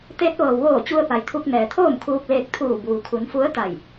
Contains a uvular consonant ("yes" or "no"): no